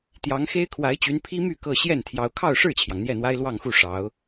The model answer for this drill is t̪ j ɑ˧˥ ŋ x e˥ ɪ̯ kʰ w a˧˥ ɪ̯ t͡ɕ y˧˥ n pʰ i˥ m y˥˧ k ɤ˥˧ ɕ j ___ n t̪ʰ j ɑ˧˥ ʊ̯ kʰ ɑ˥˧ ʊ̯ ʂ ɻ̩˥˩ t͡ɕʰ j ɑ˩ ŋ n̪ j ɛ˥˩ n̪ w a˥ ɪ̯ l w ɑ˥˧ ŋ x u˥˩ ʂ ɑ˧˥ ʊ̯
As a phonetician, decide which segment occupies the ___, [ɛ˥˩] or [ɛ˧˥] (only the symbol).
ɛ˥˩